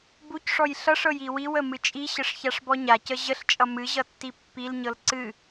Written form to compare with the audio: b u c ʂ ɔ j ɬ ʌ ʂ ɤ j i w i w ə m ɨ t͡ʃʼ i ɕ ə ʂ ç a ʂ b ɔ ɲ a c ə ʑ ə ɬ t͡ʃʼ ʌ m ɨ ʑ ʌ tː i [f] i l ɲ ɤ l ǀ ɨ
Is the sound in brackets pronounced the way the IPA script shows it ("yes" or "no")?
no